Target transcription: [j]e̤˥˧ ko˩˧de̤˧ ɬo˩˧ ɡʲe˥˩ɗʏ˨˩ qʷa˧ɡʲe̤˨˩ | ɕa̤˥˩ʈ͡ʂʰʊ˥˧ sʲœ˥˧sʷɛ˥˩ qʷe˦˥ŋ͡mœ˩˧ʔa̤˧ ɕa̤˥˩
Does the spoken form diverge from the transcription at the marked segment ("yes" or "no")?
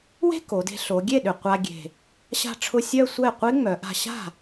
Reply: yes